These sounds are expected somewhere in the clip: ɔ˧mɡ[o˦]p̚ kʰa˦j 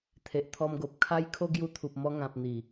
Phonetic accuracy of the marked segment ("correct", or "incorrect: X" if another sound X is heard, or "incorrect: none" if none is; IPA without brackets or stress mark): incorrect: o˨